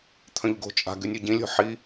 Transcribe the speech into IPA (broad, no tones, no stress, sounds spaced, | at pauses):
t̪ʰ œ̃ ʎ ɡ o̤ t͡ʃʼ a̤ ɡ y nʲ o ɟ ĩ lʲ o̤ ħ i